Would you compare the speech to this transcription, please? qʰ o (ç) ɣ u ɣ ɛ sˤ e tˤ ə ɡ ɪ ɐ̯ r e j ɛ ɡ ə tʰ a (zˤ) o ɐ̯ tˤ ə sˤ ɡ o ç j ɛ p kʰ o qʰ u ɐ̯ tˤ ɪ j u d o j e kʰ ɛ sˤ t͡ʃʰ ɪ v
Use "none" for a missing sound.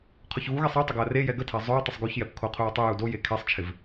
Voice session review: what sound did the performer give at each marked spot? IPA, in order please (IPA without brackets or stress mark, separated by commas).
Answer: ç, zˤ